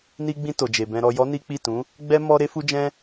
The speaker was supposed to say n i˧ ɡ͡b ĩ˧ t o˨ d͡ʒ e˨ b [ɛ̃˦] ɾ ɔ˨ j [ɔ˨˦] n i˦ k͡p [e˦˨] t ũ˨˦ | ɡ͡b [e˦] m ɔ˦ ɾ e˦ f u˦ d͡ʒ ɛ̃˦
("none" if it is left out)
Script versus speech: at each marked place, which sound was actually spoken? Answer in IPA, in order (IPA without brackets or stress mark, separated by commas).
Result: ɛ̃˧, ɔ˨˦, i˦˨, ɛ˦